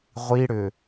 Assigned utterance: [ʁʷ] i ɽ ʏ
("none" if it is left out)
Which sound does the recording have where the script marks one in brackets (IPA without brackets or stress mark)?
ʁʷ